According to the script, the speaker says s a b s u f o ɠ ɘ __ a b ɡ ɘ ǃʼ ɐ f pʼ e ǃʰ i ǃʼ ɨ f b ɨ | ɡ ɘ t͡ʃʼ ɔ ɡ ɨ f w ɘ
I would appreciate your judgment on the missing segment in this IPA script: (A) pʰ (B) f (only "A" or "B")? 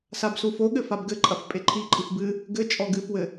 B